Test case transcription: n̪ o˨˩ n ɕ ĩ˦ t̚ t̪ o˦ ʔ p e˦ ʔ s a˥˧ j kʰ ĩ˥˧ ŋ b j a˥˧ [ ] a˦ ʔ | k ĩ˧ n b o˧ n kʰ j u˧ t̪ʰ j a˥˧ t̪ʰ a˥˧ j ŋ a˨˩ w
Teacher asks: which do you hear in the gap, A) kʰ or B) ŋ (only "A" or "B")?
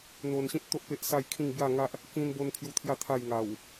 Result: B